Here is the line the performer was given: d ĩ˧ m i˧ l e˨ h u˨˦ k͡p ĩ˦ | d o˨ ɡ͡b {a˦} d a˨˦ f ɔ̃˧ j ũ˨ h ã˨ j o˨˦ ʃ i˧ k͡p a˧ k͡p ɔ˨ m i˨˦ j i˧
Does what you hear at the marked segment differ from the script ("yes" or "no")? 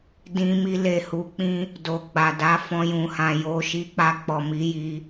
yes